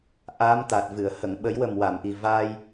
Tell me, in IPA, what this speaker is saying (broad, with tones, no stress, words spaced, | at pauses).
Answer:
ʔa˧˥mt̪a˨˩t̚vɨ˨˩˨ə̯ hə˨˩˨ŋɓə˨˩˦jwə˨˩m wa˨˩˨mʔi˨˩ vaː˧j